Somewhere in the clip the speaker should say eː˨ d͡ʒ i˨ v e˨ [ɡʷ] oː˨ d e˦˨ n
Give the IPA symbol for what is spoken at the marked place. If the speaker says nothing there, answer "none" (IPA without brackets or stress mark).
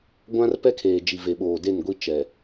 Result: ɓ